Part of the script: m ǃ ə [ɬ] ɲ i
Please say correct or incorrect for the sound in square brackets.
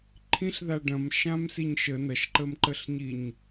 correct